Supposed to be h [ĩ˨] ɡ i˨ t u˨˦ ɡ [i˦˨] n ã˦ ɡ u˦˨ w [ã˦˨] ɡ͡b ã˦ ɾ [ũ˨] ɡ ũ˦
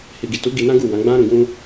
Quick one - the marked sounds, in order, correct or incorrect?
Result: incorrect: i˨, incorrect: i˧, incorrect: ã˨˦, incorrect: ũ˧

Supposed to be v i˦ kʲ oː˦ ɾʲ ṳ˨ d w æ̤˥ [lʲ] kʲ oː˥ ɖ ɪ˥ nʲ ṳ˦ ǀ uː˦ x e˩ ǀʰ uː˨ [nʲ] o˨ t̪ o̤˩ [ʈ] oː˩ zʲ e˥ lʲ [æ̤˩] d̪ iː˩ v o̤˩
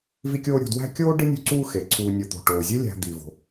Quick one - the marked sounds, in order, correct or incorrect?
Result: incorrect: none, correct, correct, incorrect: æ̤˨

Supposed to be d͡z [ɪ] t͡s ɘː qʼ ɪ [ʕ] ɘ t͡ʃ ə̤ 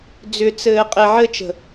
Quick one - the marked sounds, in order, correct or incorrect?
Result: incorrect: ʏ, correct

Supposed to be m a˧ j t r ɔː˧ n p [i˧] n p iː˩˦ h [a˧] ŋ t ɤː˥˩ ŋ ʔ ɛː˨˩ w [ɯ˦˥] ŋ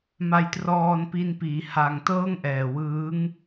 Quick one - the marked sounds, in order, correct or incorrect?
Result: correct, correct, incorrect: ɯː˦˥

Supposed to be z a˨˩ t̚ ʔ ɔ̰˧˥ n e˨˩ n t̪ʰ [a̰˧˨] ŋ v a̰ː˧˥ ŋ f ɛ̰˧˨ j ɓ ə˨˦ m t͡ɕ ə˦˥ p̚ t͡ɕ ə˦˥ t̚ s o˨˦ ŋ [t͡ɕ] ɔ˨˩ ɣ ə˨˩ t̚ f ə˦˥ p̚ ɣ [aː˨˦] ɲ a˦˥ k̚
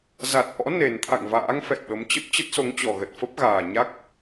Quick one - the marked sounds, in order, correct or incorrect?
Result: correct, correct, incorrect: aː˨˩

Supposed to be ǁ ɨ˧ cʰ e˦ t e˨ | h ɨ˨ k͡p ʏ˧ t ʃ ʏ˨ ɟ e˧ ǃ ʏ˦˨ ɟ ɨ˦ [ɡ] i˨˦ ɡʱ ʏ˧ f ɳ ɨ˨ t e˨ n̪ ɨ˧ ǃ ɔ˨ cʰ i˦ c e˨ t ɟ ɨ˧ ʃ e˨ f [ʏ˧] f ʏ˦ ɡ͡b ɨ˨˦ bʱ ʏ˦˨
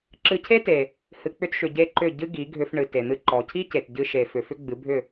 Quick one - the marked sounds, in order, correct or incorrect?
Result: correct, incorrect: ʏ˨

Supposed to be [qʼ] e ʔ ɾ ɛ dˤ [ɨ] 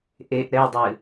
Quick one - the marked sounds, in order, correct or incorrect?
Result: incorrect: ʔ, correct

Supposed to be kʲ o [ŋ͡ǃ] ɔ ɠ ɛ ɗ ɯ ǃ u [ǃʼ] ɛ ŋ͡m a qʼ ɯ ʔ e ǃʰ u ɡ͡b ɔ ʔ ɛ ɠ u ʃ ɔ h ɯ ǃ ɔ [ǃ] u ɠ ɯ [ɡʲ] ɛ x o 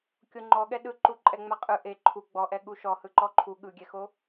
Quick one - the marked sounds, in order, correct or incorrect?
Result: correct, correct, incorrect: ǃʰ, correct

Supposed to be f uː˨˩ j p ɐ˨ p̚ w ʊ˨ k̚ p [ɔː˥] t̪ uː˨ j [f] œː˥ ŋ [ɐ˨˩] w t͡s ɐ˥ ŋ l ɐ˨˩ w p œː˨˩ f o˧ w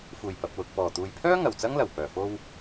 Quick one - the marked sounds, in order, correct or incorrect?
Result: incorrect: ɔː˨˩, incorrect: pʰ, correct

